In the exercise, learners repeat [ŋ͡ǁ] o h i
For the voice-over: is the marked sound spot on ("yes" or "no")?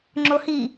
yes